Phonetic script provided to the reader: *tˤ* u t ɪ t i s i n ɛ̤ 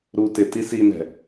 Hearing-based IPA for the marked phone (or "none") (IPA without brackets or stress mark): ɾ